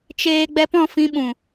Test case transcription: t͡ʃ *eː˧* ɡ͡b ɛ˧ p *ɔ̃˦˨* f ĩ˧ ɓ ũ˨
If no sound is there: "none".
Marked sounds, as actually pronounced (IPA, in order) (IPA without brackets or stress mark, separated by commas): eː˧, ɔ̃˦˨